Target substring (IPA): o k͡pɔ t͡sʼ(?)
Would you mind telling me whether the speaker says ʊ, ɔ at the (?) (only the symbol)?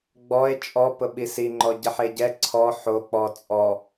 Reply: ɔ